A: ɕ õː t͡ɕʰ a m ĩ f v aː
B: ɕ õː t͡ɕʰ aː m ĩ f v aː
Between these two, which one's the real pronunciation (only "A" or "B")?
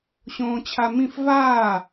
A